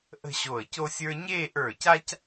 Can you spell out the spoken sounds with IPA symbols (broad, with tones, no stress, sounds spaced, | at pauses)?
ʔ ə̤˥˧ ɕ o˧˩ ə̯ c o˥ sʲ ə˞˥ ɲ eː˥˧ ʔ ə˞˧˩ c a˥ c